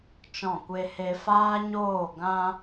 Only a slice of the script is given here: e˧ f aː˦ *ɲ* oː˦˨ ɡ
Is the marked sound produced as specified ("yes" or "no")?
yes